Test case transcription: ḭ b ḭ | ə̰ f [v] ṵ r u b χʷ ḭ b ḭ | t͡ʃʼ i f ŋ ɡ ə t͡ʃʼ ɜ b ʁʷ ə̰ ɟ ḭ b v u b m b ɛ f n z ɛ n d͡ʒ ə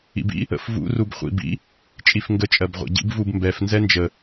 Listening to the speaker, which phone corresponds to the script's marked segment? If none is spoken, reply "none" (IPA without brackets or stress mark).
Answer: v